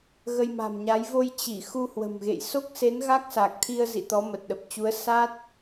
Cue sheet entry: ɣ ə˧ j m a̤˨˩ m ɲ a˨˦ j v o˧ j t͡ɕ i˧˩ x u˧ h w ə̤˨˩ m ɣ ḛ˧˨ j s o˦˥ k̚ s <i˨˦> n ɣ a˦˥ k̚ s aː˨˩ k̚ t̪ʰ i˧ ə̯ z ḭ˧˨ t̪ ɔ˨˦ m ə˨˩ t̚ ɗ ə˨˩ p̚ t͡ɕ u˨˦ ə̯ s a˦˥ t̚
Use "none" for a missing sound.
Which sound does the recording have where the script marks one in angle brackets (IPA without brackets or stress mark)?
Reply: e˨˦